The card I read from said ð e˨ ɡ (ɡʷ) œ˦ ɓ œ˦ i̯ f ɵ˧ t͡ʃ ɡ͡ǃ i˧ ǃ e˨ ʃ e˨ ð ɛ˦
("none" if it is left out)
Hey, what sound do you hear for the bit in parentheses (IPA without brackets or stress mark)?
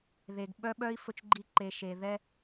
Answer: ɓ